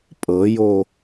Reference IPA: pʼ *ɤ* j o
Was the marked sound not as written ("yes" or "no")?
no